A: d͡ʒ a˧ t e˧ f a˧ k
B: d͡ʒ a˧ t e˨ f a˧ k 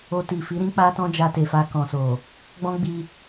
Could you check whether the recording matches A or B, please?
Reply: B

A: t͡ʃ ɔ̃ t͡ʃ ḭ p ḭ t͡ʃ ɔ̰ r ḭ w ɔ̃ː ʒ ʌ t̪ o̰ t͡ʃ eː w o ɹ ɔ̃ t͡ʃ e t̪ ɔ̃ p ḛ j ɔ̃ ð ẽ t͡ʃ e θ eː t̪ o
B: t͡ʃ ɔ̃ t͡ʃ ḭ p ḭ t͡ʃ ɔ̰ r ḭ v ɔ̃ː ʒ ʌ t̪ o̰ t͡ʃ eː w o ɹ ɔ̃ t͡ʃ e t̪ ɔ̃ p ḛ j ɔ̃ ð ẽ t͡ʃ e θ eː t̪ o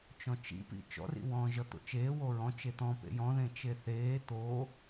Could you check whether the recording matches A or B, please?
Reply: A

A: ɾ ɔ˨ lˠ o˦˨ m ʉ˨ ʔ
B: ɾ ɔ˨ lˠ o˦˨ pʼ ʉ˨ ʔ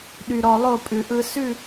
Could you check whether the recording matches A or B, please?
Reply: B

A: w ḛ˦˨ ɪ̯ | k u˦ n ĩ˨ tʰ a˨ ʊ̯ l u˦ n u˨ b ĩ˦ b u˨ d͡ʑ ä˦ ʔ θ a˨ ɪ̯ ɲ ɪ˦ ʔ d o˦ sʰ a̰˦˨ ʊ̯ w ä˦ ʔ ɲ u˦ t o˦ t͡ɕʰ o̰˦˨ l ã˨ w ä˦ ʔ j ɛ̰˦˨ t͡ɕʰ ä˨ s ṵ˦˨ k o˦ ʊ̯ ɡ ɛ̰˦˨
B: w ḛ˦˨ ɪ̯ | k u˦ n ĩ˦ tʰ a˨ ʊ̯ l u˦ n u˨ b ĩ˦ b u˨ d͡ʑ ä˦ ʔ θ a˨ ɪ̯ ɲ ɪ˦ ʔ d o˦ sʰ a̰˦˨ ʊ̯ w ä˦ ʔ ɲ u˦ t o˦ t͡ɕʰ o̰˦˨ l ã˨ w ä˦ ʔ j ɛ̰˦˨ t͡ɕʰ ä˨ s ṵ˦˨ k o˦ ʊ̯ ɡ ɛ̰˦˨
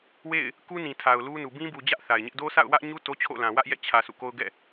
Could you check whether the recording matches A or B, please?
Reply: A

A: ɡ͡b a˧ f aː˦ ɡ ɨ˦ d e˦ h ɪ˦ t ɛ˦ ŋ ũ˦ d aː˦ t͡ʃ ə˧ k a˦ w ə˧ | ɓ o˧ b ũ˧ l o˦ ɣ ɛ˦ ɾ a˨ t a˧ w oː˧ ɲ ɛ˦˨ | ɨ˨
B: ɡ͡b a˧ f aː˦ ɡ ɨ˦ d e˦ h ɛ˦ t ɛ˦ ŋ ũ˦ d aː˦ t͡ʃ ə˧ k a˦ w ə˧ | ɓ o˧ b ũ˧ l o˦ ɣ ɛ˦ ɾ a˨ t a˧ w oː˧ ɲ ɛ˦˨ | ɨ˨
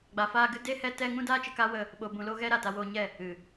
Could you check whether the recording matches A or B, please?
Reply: B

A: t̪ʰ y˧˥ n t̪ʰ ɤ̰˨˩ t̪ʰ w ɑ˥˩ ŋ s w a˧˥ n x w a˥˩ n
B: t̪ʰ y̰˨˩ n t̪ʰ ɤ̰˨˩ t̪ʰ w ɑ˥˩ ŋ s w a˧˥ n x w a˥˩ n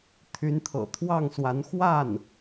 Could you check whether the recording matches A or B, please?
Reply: A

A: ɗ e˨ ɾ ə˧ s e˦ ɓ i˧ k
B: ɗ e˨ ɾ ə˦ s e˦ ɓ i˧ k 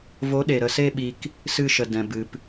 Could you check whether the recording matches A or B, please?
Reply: A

